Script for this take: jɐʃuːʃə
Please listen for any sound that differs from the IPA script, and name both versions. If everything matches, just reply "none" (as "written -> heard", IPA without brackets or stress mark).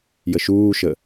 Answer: ɐ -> ə